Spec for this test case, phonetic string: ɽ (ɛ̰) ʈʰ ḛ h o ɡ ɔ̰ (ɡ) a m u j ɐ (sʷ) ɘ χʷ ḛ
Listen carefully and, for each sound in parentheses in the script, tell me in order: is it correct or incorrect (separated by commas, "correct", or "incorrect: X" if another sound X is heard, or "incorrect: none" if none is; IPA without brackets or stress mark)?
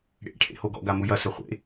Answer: incorrect: ḛ, correct, incorrect: s